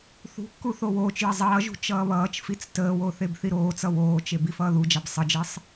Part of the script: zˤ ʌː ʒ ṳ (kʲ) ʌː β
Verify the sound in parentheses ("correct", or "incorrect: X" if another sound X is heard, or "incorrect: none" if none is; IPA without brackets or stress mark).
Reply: incorrect: t͡ʃ